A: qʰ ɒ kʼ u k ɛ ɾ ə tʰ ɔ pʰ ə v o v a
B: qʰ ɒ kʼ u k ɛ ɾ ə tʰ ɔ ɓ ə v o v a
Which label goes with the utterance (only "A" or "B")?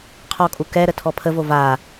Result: A